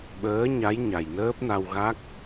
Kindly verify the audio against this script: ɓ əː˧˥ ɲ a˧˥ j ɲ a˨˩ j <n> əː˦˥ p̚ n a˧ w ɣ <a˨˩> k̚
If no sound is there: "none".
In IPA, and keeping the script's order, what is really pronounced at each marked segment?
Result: n, a˦˥

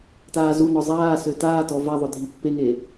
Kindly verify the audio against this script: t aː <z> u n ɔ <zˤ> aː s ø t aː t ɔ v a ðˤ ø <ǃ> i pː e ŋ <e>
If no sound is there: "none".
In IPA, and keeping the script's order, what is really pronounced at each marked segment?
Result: z, zˤ, dʱ, e

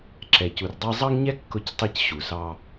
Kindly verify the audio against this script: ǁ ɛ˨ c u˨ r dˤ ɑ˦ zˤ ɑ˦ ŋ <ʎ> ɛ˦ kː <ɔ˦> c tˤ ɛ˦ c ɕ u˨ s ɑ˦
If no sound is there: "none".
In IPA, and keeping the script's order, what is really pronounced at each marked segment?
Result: ɲ, ʊ˦

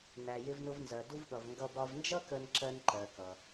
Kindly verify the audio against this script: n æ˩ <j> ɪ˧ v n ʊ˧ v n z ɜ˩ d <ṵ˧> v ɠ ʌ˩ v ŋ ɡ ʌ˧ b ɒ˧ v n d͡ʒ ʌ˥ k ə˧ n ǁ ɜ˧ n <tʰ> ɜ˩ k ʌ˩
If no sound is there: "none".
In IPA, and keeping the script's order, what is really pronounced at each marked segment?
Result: j, u˧, ǃ

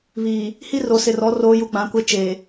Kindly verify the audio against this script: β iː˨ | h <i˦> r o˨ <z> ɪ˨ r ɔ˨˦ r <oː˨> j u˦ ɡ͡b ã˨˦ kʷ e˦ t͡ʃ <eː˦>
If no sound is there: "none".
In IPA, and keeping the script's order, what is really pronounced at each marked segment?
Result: i˦, s, oː˦, eː˨

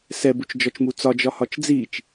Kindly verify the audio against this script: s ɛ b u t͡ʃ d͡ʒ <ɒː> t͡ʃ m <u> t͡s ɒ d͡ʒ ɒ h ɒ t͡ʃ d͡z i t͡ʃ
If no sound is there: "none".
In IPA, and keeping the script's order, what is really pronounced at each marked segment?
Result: ɒ, u

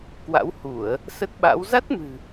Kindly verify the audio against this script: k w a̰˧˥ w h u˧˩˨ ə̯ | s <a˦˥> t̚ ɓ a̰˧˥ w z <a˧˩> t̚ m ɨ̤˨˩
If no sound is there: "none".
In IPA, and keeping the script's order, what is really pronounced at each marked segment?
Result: ə˦˥, a˦˥

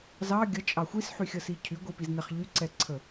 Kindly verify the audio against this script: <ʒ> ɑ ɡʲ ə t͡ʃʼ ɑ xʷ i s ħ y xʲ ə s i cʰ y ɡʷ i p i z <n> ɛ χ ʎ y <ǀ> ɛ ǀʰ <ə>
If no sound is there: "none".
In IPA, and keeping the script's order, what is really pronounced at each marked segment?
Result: z, n, ǀ, ə

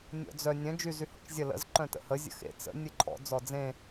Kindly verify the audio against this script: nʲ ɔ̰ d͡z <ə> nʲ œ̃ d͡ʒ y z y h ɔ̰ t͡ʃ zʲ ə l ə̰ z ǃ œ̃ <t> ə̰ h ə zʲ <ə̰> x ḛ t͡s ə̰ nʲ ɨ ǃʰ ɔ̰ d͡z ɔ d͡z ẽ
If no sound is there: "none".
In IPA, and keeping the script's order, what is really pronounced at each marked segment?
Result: œ, t, ə̰

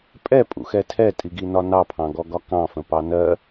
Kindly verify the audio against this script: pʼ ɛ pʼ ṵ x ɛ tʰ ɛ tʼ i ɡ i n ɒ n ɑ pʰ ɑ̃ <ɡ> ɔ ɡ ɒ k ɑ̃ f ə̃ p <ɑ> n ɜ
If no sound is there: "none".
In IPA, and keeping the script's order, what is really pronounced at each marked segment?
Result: ɡ, ɑ

